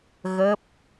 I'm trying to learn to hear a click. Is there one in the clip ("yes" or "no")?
no